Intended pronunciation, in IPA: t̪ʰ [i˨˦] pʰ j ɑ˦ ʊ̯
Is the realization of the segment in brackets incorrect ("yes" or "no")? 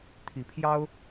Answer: no